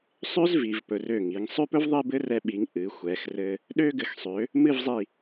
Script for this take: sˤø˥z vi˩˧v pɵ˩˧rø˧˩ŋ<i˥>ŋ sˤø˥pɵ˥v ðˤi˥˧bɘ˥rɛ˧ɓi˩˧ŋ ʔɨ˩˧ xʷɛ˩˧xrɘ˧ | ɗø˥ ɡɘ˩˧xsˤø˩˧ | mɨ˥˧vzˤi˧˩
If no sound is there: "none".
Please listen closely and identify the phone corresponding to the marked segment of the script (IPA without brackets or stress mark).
i˩˧